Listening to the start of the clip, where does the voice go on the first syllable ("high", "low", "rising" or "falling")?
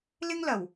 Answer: high